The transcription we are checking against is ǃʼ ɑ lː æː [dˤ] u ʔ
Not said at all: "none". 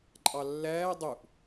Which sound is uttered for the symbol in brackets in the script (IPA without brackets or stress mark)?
dˤ